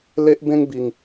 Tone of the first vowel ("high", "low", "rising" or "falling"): high